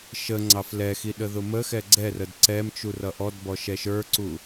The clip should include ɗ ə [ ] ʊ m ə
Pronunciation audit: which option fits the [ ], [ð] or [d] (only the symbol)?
ð